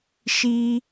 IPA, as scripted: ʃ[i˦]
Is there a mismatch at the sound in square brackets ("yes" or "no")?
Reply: no